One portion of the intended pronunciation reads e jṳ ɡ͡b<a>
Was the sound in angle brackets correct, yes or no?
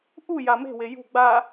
yes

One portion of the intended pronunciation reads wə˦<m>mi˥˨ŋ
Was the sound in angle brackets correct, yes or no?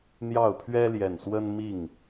no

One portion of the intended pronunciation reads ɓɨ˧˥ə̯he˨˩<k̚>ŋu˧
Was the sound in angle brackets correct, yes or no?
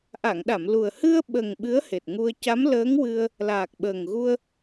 no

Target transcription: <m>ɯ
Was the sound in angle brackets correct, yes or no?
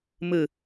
yes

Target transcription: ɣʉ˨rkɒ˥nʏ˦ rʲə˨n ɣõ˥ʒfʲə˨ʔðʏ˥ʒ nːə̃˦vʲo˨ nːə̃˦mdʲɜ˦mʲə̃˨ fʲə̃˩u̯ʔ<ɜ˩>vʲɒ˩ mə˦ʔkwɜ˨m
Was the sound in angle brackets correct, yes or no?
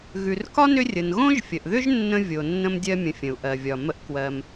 yes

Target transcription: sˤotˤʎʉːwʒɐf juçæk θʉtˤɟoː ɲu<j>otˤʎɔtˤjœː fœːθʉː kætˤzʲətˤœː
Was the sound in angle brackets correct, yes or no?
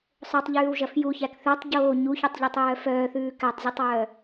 no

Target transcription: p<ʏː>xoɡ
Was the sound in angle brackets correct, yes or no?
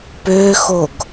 yes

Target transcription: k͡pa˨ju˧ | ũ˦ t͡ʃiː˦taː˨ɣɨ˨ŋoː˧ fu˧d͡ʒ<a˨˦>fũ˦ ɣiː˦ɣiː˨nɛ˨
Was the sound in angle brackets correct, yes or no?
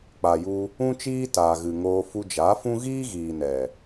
yes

